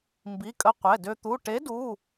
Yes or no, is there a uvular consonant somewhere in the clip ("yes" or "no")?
yes